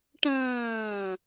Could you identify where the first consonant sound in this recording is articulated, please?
retroflex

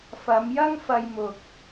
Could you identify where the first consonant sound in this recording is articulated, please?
labial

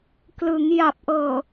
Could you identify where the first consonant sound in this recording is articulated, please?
velar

